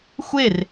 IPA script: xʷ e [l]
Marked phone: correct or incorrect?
incorrect